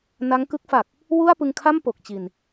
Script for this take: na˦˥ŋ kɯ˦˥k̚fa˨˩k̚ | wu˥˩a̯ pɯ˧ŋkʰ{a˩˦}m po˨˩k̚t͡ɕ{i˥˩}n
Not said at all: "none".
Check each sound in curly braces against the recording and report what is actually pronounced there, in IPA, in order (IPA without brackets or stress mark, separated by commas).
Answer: a˥˩, i˨˩